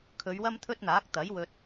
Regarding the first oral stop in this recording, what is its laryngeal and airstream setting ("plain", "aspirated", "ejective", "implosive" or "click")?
aspirated